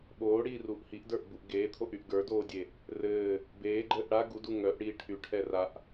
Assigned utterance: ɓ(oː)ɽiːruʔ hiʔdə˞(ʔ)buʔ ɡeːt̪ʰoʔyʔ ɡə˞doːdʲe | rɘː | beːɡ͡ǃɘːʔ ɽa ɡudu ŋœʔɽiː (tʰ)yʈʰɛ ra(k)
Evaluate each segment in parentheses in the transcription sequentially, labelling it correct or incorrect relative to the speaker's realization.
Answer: correct, correct, incorrect: ʈʰ, incorrect: ʔ

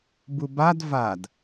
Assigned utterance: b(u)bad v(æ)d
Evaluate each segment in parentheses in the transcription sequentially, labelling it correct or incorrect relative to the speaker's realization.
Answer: correct, incorrect: a

